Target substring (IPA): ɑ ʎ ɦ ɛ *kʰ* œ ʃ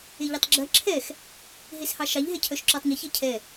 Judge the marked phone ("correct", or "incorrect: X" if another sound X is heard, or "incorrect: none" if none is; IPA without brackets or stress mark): incorrect: cʰ